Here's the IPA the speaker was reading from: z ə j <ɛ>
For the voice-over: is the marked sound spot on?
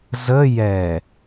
yes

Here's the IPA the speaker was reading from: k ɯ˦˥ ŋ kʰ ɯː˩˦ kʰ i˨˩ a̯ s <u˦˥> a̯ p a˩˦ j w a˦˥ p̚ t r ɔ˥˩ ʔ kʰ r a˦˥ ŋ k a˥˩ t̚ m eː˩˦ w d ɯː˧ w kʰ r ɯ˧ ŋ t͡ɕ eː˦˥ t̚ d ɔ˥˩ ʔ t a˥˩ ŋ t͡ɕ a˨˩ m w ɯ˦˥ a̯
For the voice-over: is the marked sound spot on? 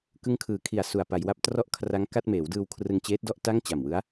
no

